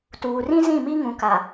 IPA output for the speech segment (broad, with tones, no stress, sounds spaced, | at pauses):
t uː˨ r ĩ˦ z ĩ˦˨ m i˦ ŋ ũ˨ k a˨